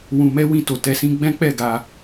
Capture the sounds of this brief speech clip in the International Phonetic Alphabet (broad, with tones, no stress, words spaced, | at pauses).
wũ˧mɛ˦ wĩ˧to˨tɛ˧ sĩ˦ ɡ͡bɛ̃˦k͡pɛ˦˨ɡa˧